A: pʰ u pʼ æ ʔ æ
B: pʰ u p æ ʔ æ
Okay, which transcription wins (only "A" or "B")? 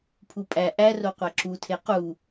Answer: A